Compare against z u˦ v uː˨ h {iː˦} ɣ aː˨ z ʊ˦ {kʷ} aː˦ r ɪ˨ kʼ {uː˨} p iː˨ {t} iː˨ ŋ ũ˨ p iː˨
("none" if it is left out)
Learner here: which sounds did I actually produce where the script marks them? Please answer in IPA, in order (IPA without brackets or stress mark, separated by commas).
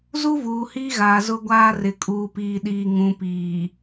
iː˦, ɡʷ, uː˨, ɗ